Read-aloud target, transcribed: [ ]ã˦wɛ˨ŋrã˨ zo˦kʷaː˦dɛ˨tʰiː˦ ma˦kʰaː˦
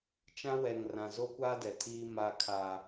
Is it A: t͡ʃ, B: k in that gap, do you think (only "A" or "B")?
A